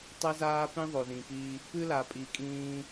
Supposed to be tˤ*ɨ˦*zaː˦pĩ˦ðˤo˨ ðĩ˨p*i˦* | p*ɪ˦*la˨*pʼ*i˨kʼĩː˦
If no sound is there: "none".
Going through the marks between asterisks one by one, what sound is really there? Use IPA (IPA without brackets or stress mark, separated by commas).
e˦, i˦, ɨ˦, pʼ